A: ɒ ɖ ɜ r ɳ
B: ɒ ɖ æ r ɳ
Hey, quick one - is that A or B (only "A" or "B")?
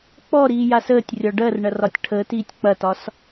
A